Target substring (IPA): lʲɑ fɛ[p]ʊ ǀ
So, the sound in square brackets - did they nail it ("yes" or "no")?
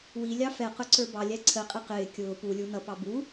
no